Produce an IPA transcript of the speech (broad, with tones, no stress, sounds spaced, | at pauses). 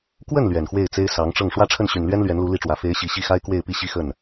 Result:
k w ə˥˩ n l ɥ ɛ˨˩ n x w e˥˩ ɪ̯ t͡s e˥ ɪ̯ s ɑ˧˥ ŋ ʈ͡ʂ ɤ˥˩ ŋ ʂ w ä˥ ʈ͡ʂʰ ə˥˩ n ɕ y˨˩ n l ɥ ɛ˥ n l ɥ ɛ˧˥ n l u˧˥ l i˥ ʈ͡ʂ w ä˧˥ f e˧˥ ɪ̯ ɕ i˨˩ ɕ i˥˩ x a˥ ɪ̯ k w e˥˧ ɪ̯ p i˥˧ ɕ i˥˧ x ə˥˩ n